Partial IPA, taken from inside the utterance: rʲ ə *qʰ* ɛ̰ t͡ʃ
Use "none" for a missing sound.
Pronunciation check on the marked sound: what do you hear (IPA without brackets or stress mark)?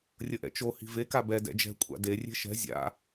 ʔ